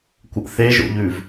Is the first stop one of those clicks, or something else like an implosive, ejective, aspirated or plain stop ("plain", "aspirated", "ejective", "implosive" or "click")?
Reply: plain